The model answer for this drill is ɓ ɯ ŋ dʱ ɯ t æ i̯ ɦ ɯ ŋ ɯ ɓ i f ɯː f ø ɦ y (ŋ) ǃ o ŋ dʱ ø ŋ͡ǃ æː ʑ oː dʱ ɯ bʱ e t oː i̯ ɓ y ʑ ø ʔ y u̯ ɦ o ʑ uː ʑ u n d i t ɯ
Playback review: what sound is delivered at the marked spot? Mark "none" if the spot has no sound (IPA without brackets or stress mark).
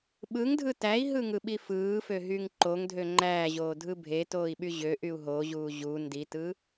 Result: ŋ